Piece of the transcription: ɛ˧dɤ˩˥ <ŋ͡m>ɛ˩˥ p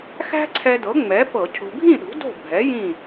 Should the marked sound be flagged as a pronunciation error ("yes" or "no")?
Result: no